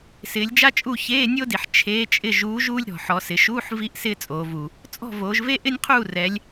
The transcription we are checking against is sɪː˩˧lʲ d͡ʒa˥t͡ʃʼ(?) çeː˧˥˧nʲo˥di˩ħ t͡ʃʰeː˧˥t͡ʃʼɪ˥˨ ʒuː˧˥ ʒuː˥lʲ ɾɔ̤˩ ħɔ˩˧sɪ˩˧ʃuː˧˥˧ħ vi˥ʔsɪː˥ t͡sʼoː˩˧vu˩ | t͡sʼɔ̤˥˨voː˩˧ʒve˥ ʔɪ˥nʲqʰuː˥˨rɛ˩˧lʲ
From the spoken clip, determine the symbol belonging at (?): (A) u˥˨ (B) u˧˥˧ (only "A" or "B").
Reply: A